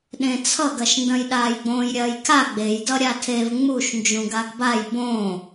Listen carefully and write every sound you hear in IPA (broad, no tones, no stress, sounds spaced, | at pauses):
ɗ ẽ t͡sʰ ʌ ɡ ɐ ʃ n d ɐ̃ j ɗ aː j ɡ͡b õː j ɾʲ ɐː j kʰ a ɡ͡b e j d ʌ ɾʲ a tʰ e v ŋ͡m u ʃ n d͡ʒ ũ ɡ a ɡ b a j b õː